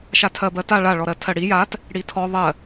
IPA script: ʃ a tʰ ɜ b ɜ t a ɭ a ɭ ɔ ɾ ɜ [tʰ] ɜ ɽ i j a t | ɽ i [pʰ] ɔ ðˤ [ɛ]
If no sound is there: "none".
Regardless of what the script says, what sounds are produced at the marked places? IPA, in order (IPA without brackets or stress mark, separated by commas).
tʰ, tʰ, ɜ